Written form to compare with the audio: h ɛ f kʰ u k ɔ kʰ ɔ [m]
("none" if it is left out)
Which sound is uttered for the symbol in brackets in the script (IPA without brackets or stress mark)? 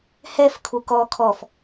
f